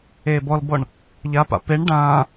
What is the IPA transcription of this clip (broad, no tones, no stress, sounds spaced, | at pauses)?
eː b ɔ l b ɔ ɳ | ʎ a p a̰ p e ɳ ɖ ãː